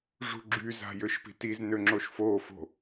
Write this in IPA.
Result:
ʐ ṳ ɡ͡ǁ y z a̤ j ø ʃ p i̤ t i z n ø ŋ͡ǁ o ʃ f o f o̤

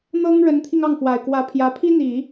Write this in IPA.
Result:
n̪ ɤ˥ ŋ ɻ ə˧˥ n t̪ʰ i˧ ŋ ɑ˥˩ ŋ f w a˨˩ ɪ̯ k w ä˧˥ pʰ j ä˧˥ pʰ i˥ n̪ i˨˩˦

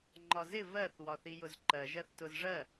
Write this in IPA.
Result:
ŋ͡ǃ ɒ z ɪ v ɜ θ w ɒ θ i j ʊ z ǃ ɜ ʒ ɜ θ t ʊ z ʐ ɜ

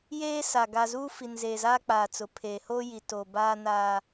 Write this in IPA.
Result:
j eː˦ s a˨ ɡ a˨ z uː˦ f i˨ n z eː˨ z aː˦ k͡p aː˨ t͡s ʊ˨ pʰ eː˨ h oː˦ j i˨ t o˨ b aː˦ n aː˦

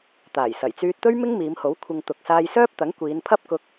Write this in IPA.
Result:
t̪ aː˨˩ j s ɐ˨˩ j t͡s yː˧ t̚ t̪ ɵ˥ ɥ m ɪ˥ ŋ m iː˨˧ m h o˨˥ w kʷʰ ɪ˨ ŋ t̪ ʊ˨ k̚ s aː˧ j s œː˥ p̚ t̪ ɐ˨˥ ŋ kʷ iː˨˧ n pʰ ɐ˥ p̚ k ʊ˧ k̚

